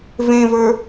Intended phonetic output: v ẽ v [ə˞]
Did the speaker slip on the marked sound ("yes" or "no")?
no